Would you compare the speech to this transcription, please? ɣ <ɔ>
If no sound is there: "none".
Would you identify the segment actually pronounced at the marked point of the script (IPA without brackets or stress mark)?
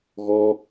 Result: ɔ